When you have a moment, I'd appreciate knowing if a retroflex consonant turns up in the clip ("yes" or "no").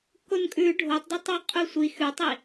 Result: yes